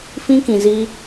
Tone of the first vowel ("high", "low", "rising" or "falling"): high